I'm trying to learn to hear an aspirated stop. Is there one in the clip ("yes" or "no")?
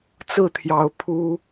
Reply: yes